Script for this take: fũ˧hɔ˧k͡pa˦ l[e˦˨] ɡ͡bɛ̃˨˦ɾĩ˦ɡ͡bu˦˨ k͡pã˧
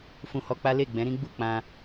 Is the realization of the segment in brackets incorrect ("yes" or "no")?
no